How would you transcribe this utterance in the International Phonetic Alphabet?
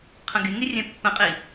qʰə̃ɡɪŋɪ rʲɛ̃pːə̃qʼi

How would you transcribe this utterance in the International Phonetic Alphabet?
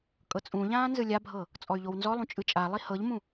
kʼɤt͡sʼũʎãː nzɯlʲabʱɤ | t͡sʼɔy̯ʎownzɔlˠũ t͡ʃʼɯt͡ʃʼalˠi hɤʎmũ

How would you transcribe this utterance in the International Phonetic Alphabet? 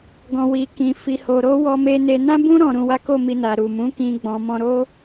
ɡɔ̃˨ wi˨kĩ˨ fi˨ho˨ɾo˨˦ wɔ˧me˧ne˧ nã˦bũ˦ ɾɔ̃˧ɾũ˧wa˦ ko˦˨mi˧na˨ ɾu˨mũ˨˦kĩ˧ ɡ͡bɔ̃˨mɔ̃˧ɾo˦

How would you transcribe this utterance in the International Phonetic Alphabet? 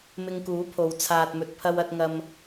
mɪ˧ŋkuː˨˥pʰo˨˧w t͡sʰaː˨t̚mɵ˨t̚pʰɐ˧wɐ˧t̚ ŋɐ˧m

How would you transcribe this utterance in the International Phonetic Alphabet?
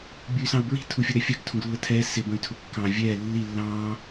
bʲuy̯sɑ̃u̯bɹi̤ tʰufʲʌɾɛfʲɑɡ tʰũɡlːətʰɛː sɪ bə̃y̯tʰʊkːɑ̃ vʲɛː lːi lːɑ̃ː

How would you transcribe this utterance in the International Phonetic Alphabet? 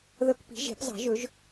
ðɤ˧kpi̤˩˥ ʒe̤˩˥pzˤɑ̤˩˥ʒɵ˩˥ʒ

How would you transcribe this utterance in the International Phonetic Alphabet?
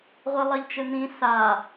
ʁʷɛlˠɐʎt͡ʃɘn̪ĩ sa

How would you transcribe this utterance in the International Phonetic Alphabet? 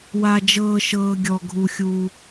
wa˩d͡ʒɤː˩ʃɤː˩ ɡʲɔ˩ɡʱu˩xʲuː˩

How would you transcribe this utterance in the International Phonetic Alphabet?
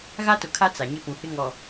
ɣa˦tʊ˨kʰa˦ t͡sa˨ ɲɪ˦pũ˨hɪ˦ ŋɔ˨

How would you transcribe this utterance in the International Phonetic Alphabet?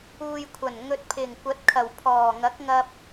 uː˨jkʷʰɐ˨˩n ŋɵ˨t̚pʰɪ˨˩ŋkʷɐ˨˥t̚kʰɐ˨˩w pʰɔː˨˩ŋɐ˨˥k̚ŋɐ˧p̚

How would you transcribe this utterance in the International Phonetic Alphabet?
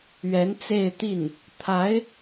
ɥɛ˧˥n t͡se˥˧ɪ̯t̪i˥˩n | t̪ʰa˧˥ɪ̯

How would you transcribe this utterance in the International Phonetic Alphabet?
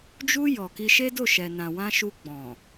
d͡ʒu˧ jɔ˨ki˧ ʃe˦do˦˨ʃɛ˨nã˨ wã˧ ʃu˧ɡ͡bɔ̃˨

